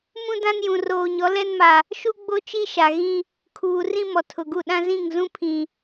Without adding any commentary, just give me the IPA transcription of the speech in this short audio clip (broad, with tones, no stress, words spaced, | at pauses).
mũ˦dã˦njũ˨ roː˨ɲɔ˨˦lɛ˦nma˨ | ʃu˦ ɡ͡bo˦t͡ʃi˦ ʃa˨ɣĩ˦ | kʰuː˨rĩ˦ mɔ˨tʰʊ˨ɡu˦˨ ɗã˦zĩ˦˨ŋzũ˦ pʰĩ˨